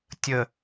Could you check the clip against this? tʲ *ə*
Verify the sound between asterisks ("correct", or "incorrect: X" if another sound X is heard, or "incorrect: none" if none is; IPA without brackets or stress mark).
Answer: correct